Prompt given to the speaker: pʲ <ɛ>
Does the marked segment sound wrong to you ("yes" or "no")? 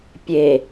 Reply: yes